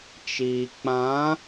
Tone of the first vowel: low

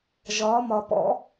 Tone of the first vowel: rising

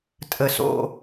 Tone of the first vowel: low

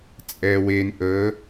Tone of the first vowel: low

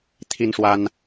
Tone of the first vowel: high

